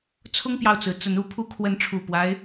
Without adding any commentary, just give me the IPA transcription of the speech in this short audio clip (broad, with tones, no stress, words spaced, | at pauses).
t͡sʰʊ˦ŋpjɑ˨ʊ̯t͡sɹ̩˩ t͡sə˨˦nu˨˦pʰu˦ kʰwə˨˦nʈ͡ʂʰu˨˩pwa˦ɪ̯